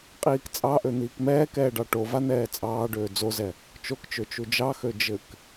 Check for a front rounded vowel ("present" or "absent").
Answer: present